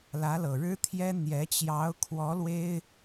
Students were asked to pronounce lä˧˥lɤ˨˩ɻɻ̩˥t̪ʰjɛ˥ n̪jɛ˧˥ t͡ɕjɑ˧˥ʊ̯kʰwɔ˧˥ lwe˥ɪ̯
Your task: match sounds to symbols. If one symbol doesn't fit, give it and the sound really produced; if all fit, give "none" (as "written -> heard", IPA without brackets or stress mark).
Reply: none